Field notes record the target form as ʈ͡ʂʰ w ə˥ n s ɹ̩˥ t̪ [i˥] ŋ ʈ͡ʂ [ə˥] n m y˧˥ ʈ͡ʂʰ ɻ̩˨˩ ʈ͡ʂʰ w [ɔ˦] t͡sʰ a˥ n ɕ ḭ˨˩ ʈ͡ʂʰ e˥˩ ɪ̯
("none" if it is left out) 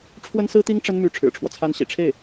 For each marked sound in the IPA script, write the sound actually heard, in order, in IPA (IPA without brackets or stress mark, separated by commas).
i˥, ə˥, ɔ˦